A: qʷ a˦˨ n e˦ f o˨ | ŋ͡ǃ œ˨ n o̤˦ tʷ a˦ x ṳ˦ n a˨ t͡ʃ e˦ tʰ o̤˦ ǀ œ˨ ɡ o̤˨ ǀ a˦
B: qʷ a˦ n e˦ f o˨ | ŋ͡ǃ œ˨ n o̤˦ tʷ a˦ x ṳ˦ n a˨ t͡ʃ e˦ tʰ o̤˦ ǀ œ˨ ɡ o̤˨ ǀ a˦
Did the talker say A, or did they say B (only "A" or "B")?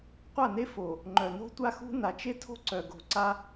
A